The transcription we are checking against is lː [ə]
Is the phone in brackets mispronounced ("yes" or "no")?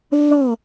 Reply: yes